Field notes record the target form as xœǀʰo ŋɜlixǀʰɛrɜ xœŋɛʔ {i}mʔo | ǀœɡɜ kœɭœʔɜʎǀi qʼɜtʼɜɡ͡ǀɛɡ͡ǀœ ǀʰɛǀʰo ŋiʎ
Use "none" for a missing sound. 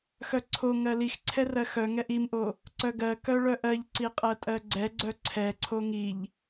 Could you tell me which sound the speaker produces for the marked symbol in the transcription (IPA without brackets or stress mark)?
i